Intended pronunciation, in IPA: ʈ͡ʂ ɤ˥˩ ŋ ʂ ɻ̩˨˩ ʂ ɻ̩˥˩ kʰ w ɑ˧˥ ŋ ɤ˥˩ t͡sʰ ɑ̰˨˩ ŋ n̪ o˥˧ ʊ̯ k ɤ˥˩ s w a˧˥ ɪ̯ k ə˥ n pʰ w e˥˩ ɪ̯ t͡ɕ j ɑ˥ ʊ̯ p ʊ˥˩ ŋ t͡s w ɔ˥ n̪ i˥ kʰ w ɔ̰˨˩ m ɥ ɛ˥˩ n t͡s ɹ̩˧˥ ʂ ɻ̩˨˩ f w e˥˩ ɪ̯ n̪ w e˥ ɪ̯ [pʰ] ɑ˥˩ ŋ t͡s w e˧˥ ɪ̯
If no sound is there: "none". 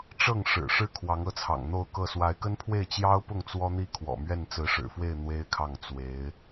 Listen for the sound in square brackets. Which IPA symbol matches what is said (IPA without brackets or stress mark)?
kʰ